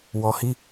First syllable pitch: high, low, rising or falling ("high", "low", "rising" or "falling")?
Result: low